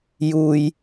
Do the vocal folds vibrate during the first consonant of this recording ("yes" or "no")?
yes